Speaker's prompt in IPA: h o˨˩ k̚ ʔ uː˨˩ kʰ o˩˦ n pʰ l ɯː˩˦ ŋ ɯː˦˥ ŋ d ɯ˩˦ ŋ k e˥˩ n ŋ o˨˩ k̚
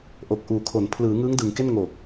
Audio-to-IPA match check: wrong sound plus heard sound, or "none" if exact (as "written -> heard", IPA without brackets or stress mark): h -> ʔ